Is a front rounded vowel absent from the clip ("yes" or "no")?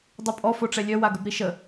no